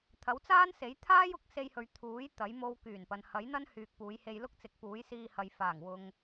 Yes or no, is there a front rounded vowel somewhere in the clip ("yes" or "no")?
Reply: yes